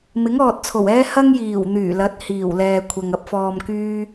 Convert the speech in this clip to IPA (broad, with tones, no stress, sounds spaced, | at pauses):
m ɪ˨˥ ŋ ɔː˨ t̚ t͡sʰ o˨˩ w ɛː˥ h ɐ˥ ŋ j iː˨˩ w n̪ yː˨˩ l ɐ˨˥ t̚ h iː˨˩ w l ɛː˨ kʷʰ ɐ˨ ŋ ɐ˧ p̚ f ɔː˨ m k yː˥